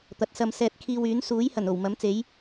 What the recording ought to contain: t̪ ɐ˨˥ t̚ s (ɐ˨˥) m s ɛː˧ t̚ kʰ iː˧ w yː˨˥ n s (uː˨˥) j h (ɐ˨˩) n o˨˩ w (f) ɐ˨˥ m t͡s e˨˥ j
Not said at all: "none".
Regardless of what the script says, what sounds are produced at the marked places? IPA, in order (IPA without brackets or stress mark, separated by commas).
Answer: ɐ˧, uː˨˥, ɐ˨˩, m